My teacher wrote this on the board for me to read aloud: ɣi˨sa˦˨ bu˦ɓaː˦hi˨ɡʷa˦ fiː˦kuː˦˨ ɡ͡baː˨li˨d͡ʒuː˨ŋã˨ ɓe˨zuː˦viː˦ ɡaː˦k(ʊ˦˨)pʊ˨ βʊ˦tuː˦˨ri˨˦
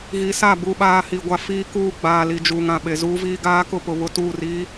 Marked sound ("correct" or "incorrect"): correct